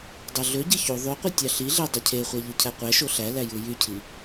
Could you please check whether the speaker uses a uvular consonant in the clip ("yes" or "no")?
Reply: yes